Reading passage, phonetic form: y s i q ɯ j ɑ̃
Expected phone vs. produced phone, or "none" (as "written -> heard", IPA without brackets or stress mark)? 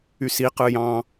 none